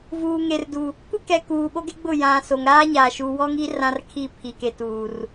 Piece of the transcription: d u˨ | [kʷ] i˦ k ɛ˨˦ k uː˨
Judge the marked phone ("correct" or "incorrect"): correct